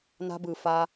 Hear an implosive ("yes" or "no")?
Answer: no